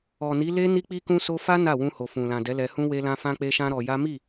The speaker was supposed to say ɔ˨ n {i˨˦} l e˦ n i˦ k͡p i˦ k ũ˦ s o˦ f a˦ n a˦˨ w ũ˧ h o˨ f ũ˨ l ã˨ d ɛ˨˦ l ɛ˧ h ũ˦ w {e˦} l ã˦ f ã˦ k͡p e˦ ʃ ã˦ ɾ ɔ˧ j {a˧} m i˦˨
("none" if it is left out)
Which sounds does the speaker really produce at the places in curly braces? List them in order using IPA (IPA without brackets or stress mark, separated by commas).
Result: i˨˦, e˦, a˦